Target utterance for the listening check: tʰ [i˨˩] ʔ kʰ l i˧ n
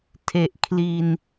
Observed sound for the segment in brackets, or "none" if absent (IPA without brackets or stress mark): e˨˩